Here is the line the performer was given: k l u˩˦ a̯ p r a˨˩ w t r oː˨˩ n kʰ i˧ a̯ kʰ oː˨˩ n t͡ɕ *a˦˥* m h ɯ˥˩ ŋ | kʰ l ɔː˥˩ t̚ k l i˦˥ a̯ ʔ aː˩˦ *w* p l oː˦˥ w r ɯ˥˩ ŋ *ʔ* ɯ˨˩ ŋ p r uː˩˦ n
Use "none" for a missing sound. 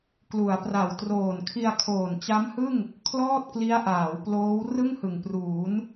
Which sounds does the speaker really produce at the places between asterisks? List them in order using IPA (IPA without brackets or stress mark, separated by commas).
a˦˥, w, h